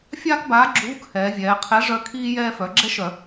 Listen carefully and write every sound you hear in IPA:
fʲ aː˦ k b aː˨˥ ɡ͡ǁ uː˨˥ k h ɛː˩˧ vʲ ɛː˩˧ qʰ ɛ˨˥ ʐ œ˦ kʰ iː˦ j ɛː˦ f œ˨˥ ɡ͡ǁ ɛ˦ ʃ œ˧˩˧

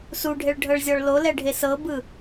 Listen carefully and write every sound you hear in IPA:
s u ɖʱ e ɭ ɖʱ ɤ ɭ zʲ ɔ ɭ l o l ɛ ɖʱ e s ɤ b ɯ

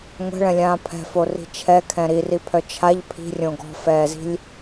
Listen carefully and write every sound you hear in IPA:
ŋʷ ɛ̤ ɭ ɛ̃ lʲ ãː pʰ ɛ̤ f o r i̤ t͡ʃʰ ɛ kʰ ɛ̃ ɾ i r i pʰ œ t͡ʃʰ a ʎ pʰ i̤ rʲ õ ɡ ɔ̤ f ɛː z i̤ lʲ

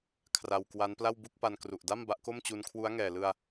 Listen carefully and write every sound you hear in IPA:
kʰ r a˧ w k w a˦˥ n p l a˥˩ w b u˥˩ k̚ p a˧ n k r u˨˩ ʔ d a˥˩ m b a˦˥ ʔ k o˥˩ m t͡ɕ u˧ n kʰ w u˦˥ a̯ ŋ ɛː˨˩ l ɯ˧ a̯

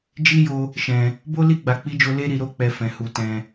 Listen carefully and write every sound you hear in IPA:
d͡ʒ i˦ j o˧ | ʃ ɛ̃˨ | b o˦ l i˦˨ ɡ͡b a˨ k͡p i˨˦ d͡ʒ o˧ l e˦ ɾ i˧ ɾ o˦ k͡p ɛ˧ f ɛ̃˨ h u˨ t ɛ̃˨

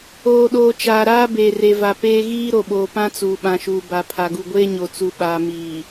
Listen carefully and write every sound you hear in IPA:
oː˨ ɗ oː˨ t͡ʃ aː˨ ɾ aː˦ b eː˨ r e˨ v a˨ p eː˦ ɣ iː˦ ɾ o˨ ɓ oː˨ p ã˦ t͡s uː˨ ɓ ã˨ ʃ uː˨ b a˨ pʰ a˨ ɡ u˨ ɡʷ eː˦ ɲ o˨ t͡s u˨ ɓ aː˨ m iː˨

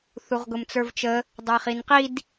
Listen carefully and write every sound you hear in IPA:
θ u ʁ ɡ ʊ m t͡s ə˞ v t͡ʃ ə | dˤ ɛ χ i n q i d

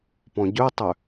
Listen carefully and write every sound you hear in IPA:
p ɔ̃ ɟ ø tˤ ø

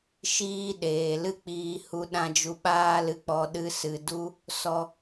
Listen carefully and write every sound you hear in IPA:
ʃ iː˧ ɗ eː˨ l ɨ˦ k͡p iː˧ h u˧ ɗ ã˧ d͡ʒ u˧ ɓ aː˦ l ɨ˧ k͡p ɔ˧ ɗ ɨ˧ s ɨ˧ d u˦ | s ɔ˧

